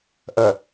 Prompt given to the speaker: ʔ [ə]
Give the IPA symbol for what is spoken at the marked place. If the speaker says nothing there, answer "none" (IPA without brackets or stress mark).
ə